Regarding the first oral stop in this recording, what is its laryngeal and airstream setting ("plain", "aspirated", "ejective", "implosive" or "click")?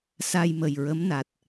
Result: plain